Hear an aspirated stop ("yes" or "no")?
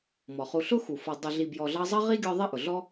no